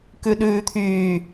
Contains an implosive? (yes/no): yes